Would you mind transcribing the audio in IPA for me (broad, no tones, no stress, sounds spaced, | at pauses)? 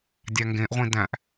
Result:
dʲ æ ŋ ɡ ẽ ʔ ʁʷ ĩ d æ̃ ʔ